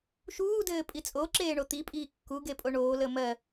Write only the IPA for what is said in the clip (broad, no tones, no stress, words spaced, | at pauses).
ʃuː dɘːpʼit͡sʼo ǁeːɳot̪i pʼiːkːu ɡepʼoɳoː ləːmɜ